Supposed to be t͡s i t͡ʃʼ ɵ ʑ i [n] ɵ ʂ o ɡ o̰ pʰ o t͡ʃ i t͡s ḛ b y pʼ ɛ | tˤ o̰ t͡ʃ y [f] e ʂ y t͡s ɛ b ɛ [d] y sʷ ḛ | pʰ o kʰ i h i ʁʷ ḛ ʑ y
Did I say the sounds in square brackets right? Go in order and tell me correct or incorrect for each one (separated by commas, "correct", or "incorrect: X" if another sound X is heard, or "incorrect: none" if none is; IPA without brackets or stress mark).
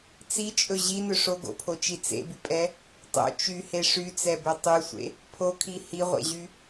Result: correct, incorrect: h, incorrect: tˤ